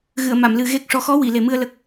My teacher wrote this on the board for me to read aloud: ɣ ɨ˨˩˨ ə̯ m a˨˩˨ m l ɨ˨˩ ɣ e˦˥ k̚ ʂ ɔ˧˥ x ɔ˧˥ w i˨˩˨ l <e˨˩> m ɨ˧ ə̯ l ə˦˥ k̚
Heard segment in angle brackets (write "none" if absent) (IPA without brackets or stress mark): e˨˩